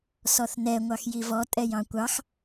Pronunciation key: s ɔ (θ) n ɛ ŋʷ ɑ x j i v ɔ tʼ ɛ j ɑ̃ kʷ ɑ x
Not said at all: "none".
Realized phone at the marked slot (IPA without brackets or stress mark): θ